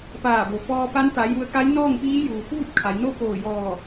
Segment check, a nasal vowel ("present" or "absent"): absent